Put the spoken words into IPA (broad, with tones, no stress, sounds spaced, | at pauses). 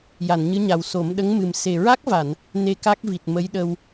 j a˨˩˨ n ɲ ɨ˧˥ ɲ a˨˩ w s o˨˩˦ m ɗ ə˧˥ ŋ m ɨ˨˩ m s e˨˩ ɹ a˦˥ k̚ v a˨˩˨ n | n e˧ k a˦˥ k̚ v i˨˩ t̚ m ə˧˥ j ɗ ə˧ w